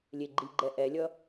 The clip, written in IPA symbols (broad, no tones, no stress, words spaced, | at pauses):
lʲeɡ͡ǃiɡ͡ǃɛ ʔɛlʲʌ